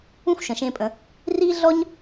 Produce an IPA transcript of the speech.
ũ˥ xʷ ʃ ə̃˩ ʃ ẽ˧ pʼ ə̃˩˧ | r i˥ ɮ ɔ˥ ɲ

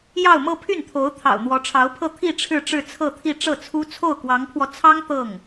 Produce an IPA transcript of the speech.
j ɑ˥˧ ʊ̯ m ɤ˥˧ pʰ y˥˩ n t̪ʰ o˧˥ ʊ̯ t̪ʰ ɑ̰˨˩ ʊ̯ n̪ w ɔ˧˥ ʈ͡ʂʰ ɑ˧˥ ʊ̯ pʰ ɤ˥˧ t̪ʰ i˥˧ ʈ͡ʂʰ ɻ̩˥˧ ʈ͡ʂ ɻ̩˥˧ t͡sʰ ɤ˥˧ t̪ʰ i˥˧ ʈ͡ʂ ɤ˥˩ t͡sʰ u˥ t͡sʰ o˥˩ ʊ̯ k w ɑ˧˥ ŋ pʰ w ɔ˧ t͡sʰ ɑ˥ ŋ t̪ ɤ˥˩ ŋ

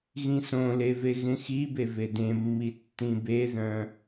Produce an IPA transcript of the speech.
ɣ ĩ s õ l e v e ɣ ẽ x i b e v e d ẽ mː i tː ĩ b e ð œ̃

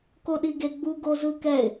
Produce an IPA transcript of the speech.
k o ɗ i ɡ e ɡ͡b u ɡ o z ɯ k ɛ ɪ̯

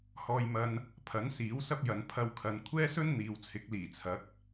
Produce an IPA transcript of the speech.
h ɔː˧ j m ɐ˧ n | pʰ ɐ˨˥ n s iː˨˥ w s ɐ˥ p̚ j ɐ˨˧ n pʰ ɐ˧ w kʰ ɐ˨ n kʷʰ ɛː˥ s ɵ˥ n n̪ iː˨ w t͡sʰ ɪ˨˥ k̚ l iː˨˩ t͡sʰ ɐ˨˥ k̚

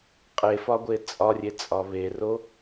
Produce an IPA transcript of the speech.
qʼ e f ɒ ɡʷ e t͡sʼ ɒ rʲ e t͡sʼ ɒ β e r o

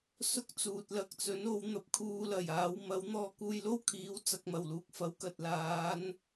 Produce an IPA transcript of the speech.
s ʊ˥ k̚ t͡s uː˨ t̚ l ɐ˨ k̚ t͡s ɵ˨˥ n o˨˥ w n̪ ɐ˧ p̚ kʰ uː˧ l ɐ˨˩ j aː˨˧ w m ɐ˨˥ w n̪ ɔː˧ k uː˧ j l o˥ w kʰ iː˨˥ w t͡s ɐ˨ k̚ m ɐ˨˩ w l uː˨ k̚ f ɐ˨˥ w k ɐ˨ t̚ l aː˨˧ n

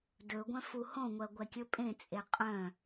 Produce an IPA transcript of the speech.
d ɵ ɡʷ œ̃ f u h õ ŋʷ ɜ ɡʷ ɛ kʲ ɵ pʼ ẽ t͡sʼ e qʼ œ̃

